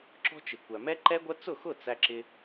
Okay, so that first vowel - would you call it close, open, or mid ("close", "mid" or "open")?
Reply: mid